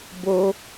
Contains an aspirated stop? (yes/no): no